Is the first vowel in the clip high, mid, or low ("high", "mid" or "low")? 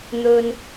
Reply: mid